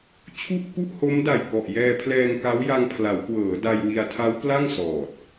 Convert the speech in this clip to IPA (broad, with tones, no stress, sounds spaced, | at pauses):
t͡ɕʰ u˥˩ ʔ k u˥˩ ʔ h o˦˥ m d a˨˩ j k ɔ˨˩ ʔ j ɛː˧ pʰ l ɛː˧ ŋ k a˦˥ w j a˧ ŋ pʰ l a˩˦ w k w ɤː˩˦ d a˧ j w i˧ a̯ tʰ a˦˥ w p l a˥˩ ŋ s ɔː˨˩ t̚